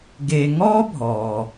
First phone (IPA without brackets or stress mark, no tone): ɡ